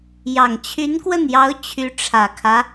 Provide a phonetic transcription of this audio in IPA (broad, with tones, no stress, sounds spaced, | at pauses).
j ɑ˨˩ ŋ t͡ɕʰ y˧˥ n k w ə˥˩ n j ɑ˧˥ ʊ̯ t͡ɕʰ y˧˥ ʈ͡ʂʰ ä˨˩ kʰ ä˦